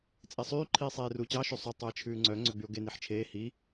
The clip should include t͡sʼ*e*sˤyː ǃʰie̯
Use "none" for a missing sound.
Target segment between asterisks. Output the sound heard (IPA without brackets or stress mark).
e